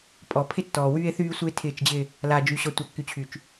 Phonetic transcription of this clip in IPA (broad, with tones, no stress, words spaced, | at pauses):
pʼɔ˨pʰɪ˦tːɔː˨ wyː˦e̯θyː˦sʷɪː˦ tʰɪː˦˨t͡ʃd͡ʑɪ˦ | laː˨d͡ʒy˨ ɕɔ˨tʷa˨kːy˨t͡ɕʰy˨t͡ʃ